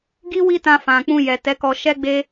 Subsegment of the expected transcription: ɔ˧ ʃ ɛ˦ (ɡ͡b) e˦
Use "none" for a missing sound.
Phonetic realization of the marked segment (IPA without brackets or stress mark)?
ɡ͡b